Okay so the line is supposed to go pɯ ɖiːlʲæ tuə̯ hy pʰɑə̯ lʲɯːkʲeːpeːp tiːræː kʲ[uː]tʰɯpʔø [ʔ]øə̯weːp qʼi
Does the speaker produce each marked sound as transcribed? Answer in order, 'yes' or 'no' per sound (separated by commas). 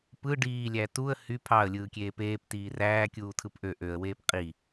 yes, yes